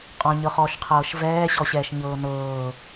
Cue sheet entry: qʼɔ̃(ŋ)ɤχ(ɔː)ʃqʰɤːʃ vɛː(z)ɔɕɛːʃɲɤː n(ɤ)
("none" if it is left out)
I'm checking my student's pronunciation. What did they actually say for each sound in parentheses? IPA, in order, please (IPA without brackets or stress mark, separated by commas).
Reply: ɲ, ɔː, ɕ, ɤː